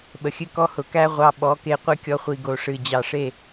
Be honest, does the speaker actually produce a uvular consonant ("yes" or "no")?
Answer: yes